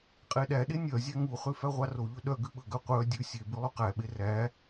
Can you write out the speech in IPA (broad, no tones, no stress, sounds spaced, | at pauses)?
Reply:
qʼ e ɗ æ ɗ e nʲ œ zʲ æ ŋ u χ ʉ f æ ʁʷ ɑ r o ʎ ɵ ɗ œ ɡ ʉ ɓ ɵ ɡ œ qʷ œ dʲ ʉ sʲ e b ʉ lˠ u q æ ɓ e r æ